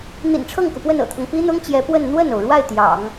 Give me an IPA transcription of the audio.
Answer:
n̪ ḭ˨˩ n ʈ͡ʂʰ ɤ˥˩ ŋ k u˩ p w ə˥˩ n ɤ̰˨˩ t̪ʰ ɤ˦ ŋ p i˥ n̪ ʊ˥ ŋ t͡ɕ j ɛ˧˥ p w ə˥˧ n n̪ w ə˥˩ n o˩ ʊ̯ ɻ w a˥˩ ɪ̯ t̪ j ɑ̰˨˩˦ ŋ

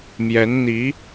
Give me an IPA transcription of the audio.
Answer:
m j ɛ˧˥ n n̪ i˧˥

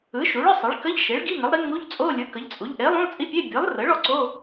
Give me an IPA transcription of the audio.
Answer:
ɯ˩˥ ʃ u˩˥ ɭ ə˧˥˧ sˤ e˩˥ ɭ k ə˧˥˧ ʎ ʃ e˩˥ ɭ ɡ i˧˥˧ ŋ ə˩˥ lˠ ɾ i˩˥ ŋ u˧˥˧ ʎ t͡sʼ o˧˥˧ lʲ ɯ˩˥ k ə˩˥ ʎ t͡sʼ u˩˥ ʎ ʔ e˩˥ lˠ ũ˧˥˧ lˠ t͡sʼ i˧˥˧ pʲ e˧˥˧ bʲ ɯ˩˥ lˠ r ə˩˥ ɭ ɔ˩˥ ǀ o˧˥˧

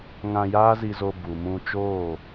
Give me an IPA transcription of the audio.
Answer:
ŋ ã˧ j aː˦ z i˧ z o˧ b u˨ m ũ˧ t͡ʃ oː˦˨

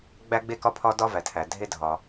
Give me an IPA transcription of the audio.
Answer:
ɡ͡b æ˥ ɡ͡b e˥ k ɒ˥ pʰ ɒ˥ d ɒ˥ v æ˩ tʰ æ˩ dʱ e˥ dʱ ɒ˩

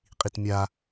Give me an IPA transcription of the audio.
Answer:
qʼ i t mʲ a

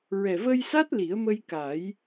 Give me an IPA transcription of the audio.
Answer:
ɹ ɛ˨˩ v ə˧ j s a˦˥ t̚ l i˨˩˦ ə̯ m ə˧ j k a˨˩˦ j

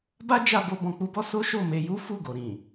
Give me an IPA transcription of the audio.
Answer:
b a˦ d͡ʒ a˧ b o˧ b ɔ̃˧ k͡p u˦ b ɔ˦ s o˦ ʃ o˦˨ m e˧ j u˦ f u˦˨ ɡ o˨ ɾ ĩ˨

